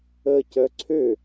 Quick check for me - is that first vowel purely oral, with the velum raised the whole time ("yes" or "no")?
yes